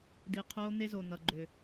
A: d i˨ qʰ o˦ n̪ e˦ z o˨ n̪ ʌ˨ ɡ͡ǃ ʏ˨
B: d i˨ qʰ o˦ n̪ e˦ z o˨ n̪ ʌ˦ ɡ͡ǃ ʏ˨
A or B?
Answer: A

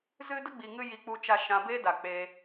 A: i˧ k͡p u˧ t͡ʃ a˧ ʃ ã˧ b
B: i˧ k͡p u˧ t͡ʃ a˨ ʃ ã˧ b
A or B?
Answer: A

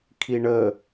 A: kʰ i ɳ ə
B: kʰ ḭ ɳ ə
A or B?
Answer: A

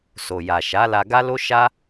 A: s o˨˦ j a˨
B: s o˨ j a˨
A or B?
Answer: B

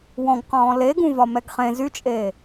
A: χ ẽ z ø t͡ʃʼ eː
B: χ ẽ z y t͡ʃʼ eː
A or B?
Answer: B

